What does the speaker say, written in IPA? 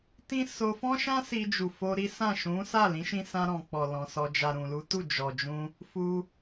t ĩ˦ s o˧ f ɔ̃˦ ʃ ã˦ s i˧ d͡ʒ u˨ f o˧ ɾ i˦ s ã˦˨ ʃ ũ˨˦ s a˦˨ l ĩ˨˦ ʃ ĩ˧ s ã˧ ɾ ɔ̃˨ k͡p ɔ˨ l ɔ̃˨ s ɔ˧ d͡ʒ a˨ ɾ ũ˨ l u˨˦ t u˦˨ d͡ʒ ɔ˨ d͡ʒ ũ˧ | f u˧

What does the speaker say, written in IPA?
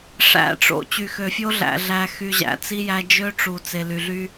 ʂ æ̰˨ ʈ͡ʂ o̰˨ t͡ɕ y˨ x ø˨ fʲ o˦ ɮ æ̰˨ ɮ æ˨ x y˨ ʑ æ̰˨ t͡s i˦ j æ˦ d͡ʒ ø˦ ʈ͡ʂ u˨ t͡s e˨ l y˨ ɮ y˦

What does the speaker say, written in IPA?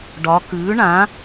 ɖ ɒ˩˧ k ʉː˩˥ ɳ ã˩˥

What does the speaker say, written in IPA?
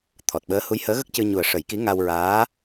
t̪ʰ ɔ˨˩ t̚ ɓ əː˧˥ h u˧˥ j h əː˧˥ ɣ ə˦˥ k̚ c ɨ˧ ɲ u˨˩ ə̯ ʂ ə˨˩˦ j k i˧˥ ŋ a˧ w ɹ aː˧˥

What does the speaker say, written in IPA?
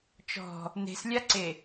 t͡ʃ ɔ̤ | n e̤ s lʲ a ǀ e

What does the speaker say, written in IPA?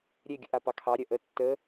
ɾʲ e ɡʲ ə̰ ʔ a p ɑ kʰ ɑ ɾʲ ɜ ʔ ə tː ə

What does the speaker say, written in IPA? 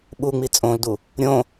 ɓ u ŋ͡m i t͡sʼ õ l d u | ɾʲ õ

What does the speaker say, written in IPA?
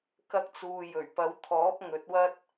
k ɐ˧ k̚ t͡s uː˨ j ɵ˨˩ ɥ p ɐ˨˧ w t̪ʰ ɔː˨˥ p̚ ŋ ɵ˨˥ t̚ w ɐ˥ t̚

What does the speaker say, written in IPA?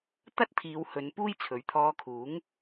t̪ ɐ˥ t̚ t̪ʰ iː˨˧ w h ɵ˨˧ n p uː˥ j t͡sʰ ɵ˨˥ ɥ t̪ʰ ɔː˧ kʰ uː˨˥ ŋ

